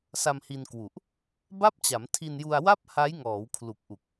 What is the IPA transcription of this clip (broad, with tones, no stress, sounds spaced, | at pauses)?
s a˧ m h i˧ n k w u˨˩ ʔ | b a˥˩ p̚ t͡ɕ a˩˦ m tʰ i˧ n j u˧ a̯ w a˥˩ p̚ h a˦˥ j ŋ ɔː˩˦ w kʰ l u˨˩ k̚ ʔ u˨˩ k̚